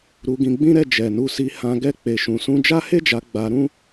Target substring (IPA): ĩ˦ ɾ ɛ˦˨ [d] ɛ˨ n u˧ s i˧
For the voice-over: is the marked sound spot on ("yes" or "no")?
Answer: no